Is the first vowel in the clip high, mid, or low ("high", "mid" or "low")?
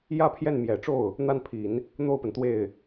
low